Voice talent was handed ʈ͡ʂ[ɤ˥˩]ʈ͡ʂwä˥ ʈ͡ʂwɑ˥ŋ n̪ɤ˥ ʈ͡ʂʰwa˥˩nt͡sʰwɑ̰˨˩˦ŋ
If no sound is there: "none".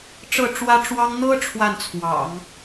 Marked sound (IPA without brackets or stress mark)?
ɤ˥˩